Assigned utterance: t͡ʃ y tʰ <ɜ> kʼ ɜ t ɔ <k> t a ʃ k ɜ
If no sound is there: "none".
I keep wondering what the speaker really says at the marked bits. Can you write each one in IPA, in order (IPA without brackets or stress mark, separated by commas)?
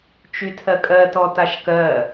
ɜ, none